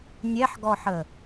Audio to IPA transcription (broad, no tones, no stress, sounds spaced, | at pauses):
nʲ ɛ ħ ɡ ɔ ħ ə